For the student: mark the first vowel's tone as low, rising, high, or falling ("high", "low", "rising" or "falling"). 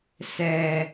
low